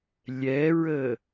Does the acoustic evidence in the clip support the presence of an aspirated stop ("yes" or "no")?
no